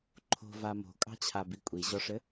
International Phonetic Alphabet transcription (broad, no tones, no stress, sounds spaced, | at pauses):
ǃʰ o̤ v a m o̤ kʼ ɑ̤ t͡ɕʰ a b i kʷʼ i ʑ ɔ ʂ ɘ